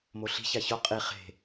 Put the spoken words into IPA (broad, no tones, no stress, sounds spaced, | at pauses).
m o ɬ i̤ ç a ç ɔ qʼ i χ e̤